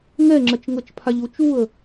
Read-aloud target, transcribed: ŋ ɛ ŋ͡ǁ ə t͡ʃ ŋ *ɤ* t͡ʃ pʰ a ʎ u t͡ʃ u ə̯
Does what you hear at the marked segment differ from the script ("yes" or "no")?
no